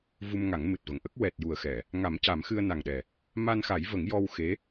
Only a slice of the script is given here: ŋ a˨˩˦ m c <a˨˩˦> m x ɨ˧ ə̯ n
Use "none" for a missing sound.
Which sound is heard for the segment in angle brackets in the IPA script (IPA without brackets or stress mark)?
a˨˩˦